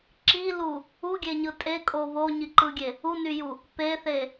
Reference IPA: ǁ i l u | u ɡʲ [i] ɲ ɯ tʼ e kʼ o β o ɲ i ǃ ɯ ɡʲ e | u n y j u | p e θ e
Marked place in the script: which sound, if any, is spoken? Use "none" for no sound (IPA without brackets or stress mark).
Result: e